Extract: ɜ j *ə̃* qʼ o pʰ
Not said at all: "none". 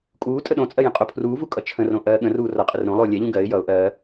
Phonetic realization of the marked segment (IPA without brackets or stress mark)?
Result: ə̃